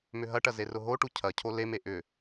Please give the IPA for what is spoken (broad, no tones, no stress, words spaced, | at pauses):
mʏɦɐʈɐ zerʊɦoʈu cʰɐcʰo leme ʔʏ